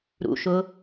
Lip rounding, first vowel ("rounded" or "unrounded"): rounded